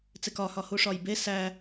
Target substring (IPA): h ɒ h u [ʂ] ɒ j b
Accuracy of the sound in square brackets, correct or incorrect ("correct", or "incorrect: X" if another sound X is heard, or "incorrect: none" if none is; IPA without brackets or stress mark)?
correct